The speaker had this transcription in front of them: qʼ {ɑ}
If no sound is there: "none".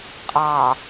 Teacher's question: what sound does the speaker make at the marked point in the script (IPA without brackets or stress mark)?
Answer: ɑ